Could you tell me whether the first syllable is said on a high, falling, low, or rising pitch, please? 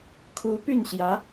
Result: rising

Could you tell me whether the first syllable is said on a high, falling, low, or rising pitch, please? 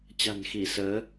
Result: low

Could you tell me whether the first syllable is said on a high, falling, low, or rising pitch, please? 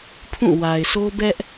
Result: falling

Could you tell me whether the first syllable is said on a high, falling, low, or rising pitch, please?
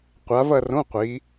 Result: rising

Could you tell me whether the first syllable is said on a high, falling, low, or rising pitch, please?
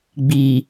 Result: low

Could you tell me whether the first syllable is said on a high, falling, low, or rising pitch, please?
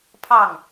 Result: falling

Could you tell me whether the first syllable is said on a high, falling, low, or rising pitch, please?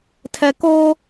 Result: low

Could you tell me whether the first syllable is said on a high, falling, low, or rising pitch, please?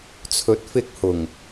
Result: rising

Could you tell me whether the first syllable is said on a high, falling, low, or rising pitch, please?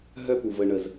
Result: high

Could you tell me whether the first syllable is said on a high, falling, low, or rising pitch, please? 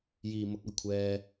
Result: low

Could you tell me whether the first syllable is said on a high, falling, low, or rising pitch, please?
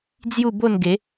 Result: falling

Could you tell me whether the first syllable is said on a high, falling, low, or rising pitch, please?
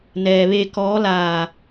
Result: low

